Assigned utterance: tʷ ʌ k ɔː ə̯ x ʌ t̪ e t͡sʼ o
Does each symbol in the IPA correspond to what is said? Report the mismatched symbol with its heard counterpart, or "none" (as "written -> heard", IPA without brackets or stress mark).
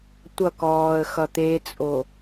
none